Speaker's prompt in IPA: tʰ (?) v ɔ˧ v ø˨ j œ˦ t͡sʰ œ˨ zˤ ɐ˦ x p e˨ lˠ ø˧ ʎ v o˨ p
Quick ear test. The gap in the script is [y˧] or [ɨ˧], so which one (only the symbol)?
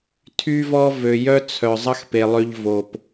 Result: y˧